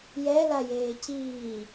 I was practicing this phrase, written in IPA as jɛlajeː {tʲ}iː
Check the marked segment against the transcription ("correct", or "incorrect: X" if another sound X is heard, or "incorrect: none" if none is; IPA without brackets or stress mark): incorrect: c